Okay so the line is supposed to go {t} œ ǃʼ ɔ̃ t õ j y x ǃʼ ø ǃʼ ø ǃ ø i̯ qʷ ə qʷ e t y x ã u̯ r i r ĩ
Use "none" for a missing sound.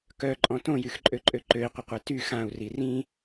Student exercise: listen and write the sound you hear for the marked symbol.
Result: k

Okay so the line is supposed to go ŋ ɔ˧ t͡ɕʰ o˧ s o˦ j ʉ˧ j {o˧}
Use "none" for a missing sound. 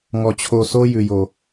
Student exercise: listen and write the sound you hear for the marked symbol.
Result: o˧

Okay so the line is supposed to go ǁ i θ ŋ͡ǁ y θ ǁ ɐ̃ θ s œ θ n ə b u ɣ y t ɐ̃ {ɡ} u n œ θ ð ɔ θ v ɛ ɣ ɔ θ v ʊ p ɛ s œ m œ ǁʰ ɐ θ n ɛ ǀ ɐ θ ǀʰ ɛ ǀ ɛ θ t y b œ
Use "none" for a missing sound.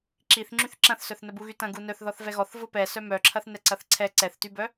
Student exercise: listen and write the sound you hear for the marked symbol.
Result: ɡ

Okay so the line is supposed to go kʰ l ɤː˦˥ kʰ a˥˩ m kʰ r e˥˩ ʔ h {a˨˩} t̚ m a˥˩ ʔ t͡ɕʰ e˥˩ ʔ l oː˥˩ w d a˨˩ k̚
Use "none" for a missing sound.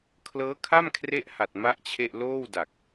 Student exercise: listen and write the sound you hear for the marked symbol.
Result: a˨˩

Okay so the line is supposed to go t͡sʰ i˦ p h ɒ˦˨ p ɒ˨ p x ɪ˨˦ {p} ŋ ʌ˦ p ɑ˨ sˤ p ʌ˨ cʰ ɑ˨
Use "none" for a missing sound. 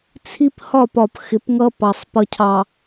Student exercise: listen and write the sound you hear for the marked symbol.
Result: p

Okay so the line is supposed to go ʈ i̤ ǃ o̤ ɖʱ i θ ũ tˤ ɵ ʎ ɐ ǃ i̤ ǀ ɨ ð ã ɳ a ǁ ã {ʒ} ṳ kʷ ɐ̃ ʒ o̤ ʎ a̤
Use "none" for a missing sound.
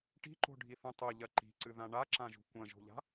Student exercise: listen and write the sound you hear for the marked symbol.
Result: ʒ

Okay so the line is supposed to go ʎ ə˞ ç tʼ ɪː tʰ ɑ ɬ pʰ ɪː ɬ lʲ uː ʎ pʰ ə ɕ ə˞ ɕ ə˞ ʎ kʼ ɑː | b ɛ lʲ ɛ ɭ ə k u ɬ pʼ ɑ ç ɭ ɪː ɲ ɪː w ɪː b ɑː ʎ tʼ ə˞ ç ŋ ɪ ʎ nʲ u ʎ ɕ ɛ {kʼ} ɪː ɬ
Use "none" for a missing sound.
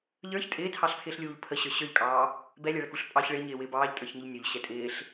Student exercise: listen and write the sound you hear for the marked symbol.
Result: tʼ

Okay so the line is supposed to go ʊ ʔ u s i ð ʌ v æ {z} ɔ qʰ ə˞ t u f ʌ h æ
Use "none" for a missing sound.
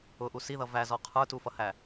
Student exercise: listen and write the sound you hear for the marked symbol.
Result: z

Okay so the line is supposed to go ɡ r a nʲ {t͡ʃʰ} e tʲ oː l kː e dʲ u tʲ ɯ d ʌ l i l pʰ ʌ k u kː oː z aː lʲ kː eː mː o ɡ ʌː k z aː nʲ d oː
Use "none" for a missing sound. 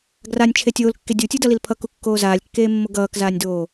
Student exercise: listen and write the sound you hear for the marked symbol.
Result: t͡ʃʰ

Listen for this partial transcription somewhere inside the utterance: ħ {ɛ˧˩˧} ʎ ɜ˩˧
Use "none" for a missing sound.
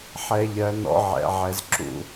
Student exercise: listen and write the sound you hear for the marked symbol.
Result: ɛ˧˩˧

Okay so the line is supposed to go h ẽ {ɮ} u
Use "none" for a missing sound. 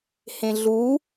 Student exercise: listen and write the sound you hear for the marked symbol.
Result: ɮ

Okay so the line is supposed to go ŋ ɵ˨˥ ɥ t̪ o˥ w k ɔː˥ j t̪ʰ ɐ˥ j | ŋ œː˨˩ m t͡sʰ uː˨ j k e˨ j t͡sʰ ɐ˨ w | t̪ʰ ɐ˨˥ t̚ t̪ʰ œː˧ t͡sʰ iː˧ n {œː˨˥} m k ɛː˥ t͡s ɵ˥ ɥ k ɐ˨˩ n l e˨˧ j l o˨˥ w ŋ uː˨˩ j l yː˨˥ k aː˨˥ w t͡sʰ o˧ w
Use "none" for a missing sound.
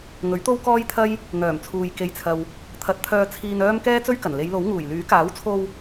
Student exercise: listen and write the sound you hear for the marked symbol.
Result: œː˥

